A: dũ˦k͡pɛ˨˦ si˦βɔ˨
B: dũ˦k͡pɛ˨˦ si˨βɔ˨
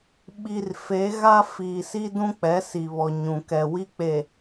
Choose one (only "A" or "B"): B